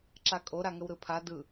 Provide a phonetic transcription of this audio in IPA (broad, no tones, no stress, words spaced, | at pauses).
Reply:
ǁakʼo ɾaŋəwɾɯpʰa dɯ